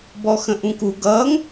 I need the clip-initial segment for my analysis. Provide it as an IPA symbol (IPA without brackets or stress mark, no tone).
b